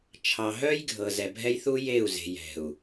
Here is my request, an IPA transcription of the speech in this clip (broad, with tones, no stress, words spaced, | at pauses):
t͡ʃʰɑ˨ɦœ˦jɡʱɤ˨ zɛ˨bʱɛ˦jθu˦ je˦˨u̯ze̤˨j ɛ̤˨u̯